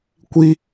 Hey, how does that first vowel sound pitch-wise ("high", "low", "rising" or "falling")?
high